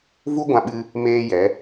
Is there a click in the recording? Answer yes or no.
no